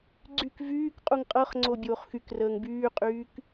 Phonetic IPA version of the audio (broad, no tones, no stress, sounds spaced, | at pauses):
ɡ͡ǀ y k v yː k qʼ u ŋ qʼ ɤ χ ŋ͡ǀ o bʲ oː χ x y k r əː ŋ b yː qʼ yː k